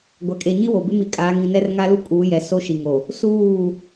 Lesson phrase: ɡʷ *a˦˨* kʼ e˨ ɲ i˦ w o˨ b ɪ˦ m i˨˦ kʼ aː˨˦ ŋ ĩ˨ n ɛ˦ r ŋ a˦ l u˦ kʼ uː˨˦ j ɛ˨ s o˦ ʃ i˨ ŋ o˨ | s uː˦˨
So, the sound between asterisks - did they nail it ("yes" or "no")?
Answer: no